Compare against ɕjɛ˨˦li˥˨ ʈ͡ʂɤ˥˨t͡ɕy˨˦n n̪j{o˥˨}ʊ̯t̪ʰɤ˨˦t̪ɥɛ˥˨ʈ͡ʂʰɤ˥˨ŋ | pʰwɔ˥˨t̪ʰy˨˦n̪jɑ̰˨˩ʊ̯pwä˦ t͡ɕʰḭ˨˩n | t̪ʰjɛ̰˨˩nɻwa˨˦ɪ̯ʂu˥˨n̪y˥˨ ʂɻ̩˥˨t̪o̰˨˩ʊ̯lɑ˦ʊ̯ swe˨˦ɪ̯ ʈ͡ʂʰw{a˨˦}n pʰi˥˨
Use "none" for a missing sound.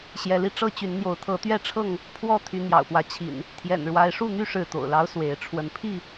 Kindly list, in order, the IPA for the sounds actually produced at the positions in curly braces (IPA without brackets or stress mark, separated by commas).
o˨˦, ə˨˦